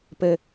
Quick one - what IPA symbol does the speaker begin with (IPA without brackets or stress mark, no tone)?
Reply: p